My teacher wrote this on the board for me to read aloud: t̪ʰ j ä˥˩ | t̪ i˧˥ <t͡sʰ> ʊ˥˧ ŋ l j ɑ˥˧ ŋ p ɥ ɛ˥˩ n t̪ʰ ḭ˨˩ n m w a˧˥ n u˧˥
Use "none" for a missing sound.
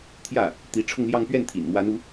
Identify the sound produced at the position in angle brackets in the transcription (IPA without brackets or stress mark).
ʈ͡ʂʰ